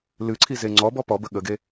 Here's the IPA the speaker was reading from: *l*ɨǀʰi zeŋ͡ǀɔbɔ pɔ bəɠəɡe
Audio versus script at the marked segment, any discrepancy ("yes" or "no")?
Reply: no